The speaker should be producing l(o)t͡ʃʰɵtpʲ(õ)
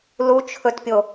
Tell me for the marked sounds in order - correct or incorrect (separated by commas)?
incorrect, incorrect